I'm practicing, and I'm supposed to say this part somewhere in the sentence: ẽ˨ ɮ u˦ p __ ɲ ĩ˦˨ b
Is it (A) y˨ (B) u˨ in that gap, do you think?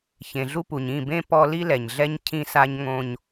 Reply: B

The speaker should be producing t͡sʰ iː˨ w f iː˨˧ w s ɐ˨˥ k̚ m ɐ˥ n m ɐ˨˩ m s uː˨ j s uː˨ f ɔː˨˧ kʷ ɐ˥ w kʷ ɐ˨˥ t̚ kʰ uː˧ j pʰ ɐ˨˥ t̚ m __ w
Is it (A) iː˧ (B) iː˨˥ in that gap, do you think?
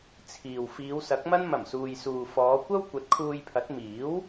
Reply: B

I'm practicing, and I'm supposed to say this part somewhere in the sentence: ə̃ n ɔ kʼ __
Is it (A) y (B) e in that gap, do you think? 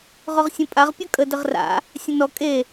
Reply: B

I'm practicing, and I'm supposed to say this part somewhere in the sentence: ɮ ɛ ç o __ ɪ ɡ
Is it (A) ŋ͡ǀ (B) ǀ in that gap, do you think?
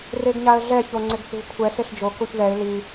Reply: A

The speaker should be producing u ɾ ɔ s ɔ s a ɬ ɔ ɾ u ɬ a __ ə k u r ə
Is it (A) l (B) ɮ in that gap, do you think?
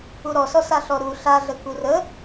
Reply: B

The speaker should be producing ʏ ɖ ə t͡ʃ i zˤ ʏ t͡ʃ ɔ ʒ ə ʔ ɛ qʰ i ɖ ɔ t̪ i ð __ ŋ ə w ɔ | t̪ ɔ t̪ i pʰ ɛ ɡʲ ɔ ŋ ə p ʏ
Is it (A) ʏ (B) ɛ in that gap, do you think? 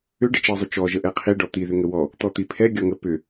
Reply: A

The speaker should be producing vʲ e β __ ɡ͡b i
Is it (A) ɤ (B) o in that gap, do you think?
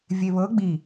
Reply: A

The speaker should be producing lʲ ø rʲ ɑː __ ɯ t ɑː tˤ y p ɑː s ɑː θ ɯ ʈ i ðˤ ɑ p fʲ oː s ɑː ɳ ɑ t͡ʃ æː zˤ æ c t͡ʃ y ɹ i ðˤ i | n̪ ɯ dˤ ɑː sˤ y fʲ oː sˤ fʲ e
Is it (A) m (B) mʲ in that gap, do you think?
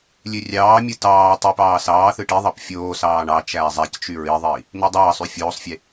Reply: B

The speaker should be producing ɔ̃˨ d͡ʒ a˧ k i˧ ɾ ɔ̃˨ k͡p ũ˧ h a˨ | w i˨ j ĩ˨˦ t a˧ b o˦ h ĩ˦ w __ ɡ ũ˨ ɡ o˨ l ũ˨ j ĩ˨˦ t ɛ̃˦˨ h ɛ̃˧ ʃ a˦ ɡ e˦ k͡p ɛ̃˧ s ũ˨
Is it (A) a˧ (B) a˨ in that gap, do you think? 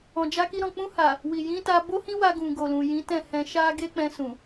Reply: A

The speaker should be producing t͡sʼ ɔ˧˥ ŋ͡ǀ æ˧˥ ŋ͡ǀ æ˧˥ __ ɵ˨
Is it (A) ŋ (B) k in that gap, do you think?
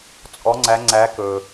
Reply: B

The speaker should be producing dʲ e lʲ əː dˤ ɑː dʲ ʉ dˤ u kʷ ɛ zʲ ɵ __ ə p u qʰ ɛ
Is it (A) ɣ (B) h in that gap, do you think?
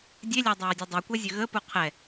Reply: A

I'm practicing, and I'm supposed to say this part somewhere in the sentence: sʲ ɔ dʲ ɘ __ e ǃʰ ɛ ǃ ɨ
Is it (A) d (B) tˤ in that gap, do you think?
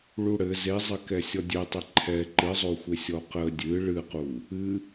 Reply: B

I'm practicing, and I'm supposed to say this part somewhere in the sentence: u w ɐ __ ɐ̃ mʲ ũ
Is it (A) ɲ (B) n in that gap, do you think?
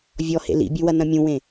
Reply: B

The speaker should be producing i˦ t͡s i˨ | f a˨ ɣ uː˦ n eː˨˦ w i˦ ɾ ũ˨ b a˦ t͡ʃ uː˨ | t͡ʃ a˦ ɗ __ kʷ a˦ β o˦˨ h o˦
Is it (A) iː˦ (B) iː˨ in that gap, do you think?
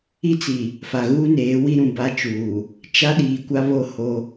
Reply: B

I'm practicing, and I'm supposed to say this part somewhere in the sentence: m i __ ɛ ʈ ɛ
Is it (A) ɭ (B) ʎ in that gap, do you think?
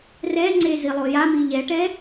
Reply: B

